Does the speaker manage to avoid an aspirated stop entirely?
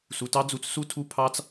no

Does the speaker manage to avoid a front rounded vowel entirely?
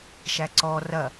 yes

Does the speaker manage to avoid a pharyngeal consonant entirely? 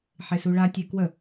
no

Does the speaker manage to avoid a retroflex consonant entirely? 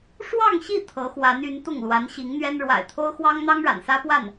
no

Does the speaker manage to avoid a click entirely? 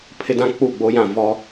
yes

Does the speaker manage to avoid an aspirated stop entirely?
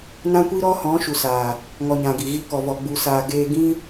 yes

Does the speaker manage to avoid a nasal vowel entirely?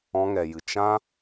no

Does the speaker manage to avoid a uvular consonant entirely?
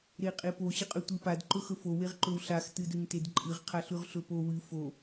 no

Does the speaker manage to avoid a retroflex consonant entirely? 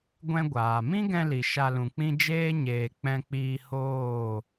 yes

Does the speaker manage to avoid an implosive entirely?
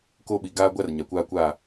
no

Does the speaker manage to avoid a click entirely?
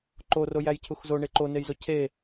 no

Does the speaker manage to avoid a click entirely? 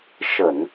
yes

